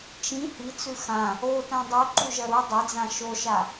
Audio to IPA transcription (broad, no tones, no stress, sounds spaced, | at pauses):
t͡ʃ ĩ h i t͡s ʉ x ã | o t ã dˤ u ǃ u ʒ ɐ ɾ u dˤ ɐ d͡z ã ʃ o ʃ a